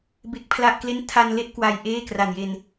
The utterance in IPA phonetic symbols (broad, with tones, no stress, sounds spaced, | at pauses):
b e˦˥ k̚ pʰ l a˥˩ ʔ k l e˥˩ n tʰ a˧ n l e˥˩ ʔ k w a˧ j ʔ eː˥˩ k r a˨˩ n j e˧ n